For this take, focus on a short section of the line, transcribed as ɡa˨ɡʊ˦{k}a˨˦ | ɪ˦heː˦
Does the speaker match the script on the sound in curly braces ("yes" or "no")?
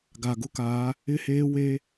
yes